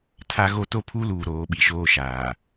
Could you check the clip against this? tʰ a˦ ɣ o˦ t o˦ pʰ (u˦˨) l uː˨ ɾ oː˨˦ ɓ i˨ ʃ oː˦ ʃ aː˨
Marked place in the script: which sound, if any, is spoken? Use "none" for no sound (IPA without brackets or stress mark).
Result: u˦